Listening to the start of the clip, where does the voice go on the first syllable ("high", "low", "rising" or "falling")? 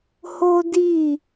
high